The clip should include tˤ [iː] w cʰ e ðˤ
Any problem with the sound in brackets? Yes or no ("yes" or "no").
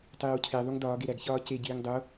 no